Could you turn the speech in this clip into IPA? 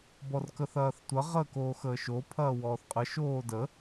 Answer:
b ɔ r k ə θ ɐː θ tʷ ɐ ʁ əː k oː x əː ʃ o pʰ ɐː w ɔː θ qʼ ə ʃ oː d ə

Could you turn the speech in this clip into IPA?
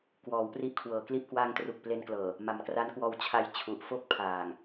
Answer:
k w ɔː˩˦ w p r i˦˥ ʔ kʰ w ɤː˩˦ k l i˥˩ ʔ k w aː˧ ŋ t r u˨˩ k̚ p l e˧ n k l ɤː˨˩ | m a˨˩ m k r a˦˥ n k w ɔː˧ w t͡ɕʰ a˧ j t͡ɕʰ u˨˩ ʔ f o˥˩ k̚ pʰ aː˨˩ ŋ

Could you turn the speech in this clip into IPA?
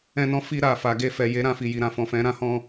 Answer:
ɛ̃˧ n ɔ̃˧ f i˧ ɾ a˨ f a˨ ɡ e˧ f ɛ˨ j e˨˦ ɾ ã˧ f i˨ j i˨ ɾ ã˧ f ɔ̃˨ f ɛ̃˨˦ ɾ ã˦ h ɔ̃˧

